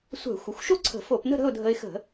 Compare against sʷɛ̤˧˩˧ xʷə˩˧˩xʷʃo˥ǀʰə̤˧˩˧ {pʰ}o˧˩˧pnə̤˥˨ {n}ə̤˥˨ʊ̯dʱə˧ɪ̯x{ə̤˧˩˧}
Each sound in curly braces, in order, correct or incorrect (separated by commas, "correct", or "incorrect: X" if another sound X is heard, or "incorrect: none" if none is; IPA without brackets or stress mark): incorrect: f, incorrect: ɾ, correct